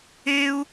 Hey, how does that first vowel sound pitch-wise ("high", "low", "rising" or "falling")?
high